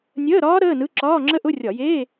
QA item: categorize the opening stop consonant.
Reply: click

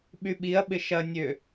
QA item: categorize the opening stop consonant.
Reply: implosive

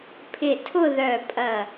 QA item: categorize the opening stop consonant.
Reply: aspirated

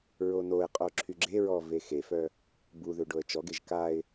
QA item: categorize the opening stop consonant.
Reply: ejective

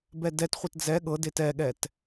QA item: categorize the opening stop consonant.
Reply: plain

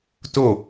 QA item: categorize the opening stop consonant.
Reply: plain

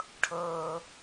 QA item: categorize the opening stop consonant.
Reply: aspirated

